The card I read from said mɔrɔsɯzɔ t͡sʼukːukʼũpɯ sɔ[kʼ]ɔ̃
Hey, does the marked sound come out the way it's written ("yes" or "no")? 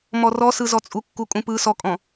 yes